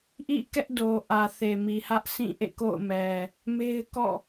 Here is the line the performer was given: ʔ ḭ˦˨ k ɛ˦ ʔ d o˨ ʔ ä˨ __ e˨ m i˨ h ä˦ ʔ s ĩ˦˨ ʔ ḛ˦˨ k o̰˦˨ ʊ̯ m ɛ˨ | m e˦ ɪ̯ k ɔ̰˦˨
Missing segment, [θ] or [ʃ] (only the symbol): θ